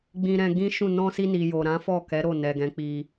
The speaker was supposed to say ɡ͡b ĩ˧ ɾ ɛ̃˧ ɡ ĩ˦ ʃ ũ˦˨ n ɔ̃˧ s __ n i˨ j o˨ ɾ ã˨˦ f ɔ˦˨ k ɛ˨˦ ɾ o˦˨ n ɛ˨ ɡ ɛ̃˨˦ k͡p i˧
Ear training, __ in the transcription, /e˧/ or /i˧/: i˧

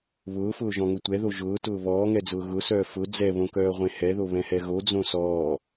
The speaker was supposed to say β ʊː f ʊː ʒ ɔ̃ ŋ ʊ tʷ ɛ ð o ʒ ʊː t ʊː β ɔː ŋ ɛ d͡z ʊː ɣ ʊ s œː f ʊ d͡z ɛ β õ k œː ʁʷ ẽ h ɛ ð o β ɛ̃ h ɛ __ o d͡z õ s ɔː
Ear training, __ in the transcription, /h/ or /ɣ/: ɣ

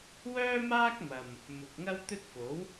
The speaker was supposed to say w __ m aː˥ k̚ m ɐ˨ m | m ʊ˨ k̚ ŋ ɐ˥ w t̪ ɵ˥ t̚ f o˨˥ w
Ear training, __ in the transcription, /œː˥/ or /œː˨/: œː˥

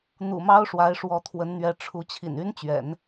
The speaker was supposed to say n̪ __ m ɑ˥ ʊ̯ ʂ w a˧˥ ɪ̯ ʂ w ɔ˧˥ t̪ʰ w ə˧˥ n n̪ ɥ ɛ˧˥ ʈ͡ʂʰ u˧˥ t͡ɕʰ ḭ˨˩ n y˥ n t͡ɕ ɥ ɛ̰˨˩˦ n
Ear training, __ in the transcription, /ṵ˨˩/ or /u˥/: ṵ˨˩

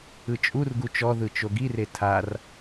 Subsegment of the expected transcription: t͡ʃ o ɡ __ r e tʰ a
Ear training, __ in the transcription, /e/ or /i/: i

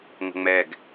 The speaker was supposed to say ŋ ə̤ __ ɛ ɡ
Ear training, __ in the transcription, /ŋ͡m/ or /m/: ŋ͡m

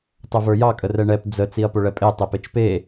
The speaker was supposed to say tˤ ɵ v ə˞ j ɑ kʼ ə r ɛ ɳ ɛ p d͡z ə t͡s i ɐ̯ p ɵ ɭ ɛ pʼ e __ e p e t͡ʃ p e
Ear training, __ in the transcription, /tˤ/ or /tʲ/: tˤ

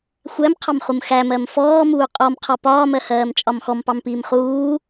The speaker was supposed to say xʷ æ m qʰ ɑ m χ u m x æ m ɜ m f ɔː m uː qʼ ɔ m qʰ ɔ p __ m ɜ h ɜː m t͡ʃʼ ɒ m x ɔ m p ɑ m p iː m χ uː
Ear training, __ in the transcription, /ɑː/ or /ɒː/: ɒː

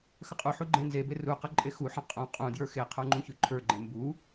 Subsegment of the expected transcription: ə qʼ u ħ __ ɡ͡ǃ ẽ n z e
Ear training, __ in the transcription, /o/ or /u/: u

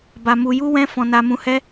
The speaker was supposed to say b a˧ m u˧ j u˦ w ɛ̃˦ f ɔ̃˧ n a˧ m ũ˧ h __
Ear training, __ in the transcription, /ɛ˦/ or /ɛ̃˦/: ɛ˦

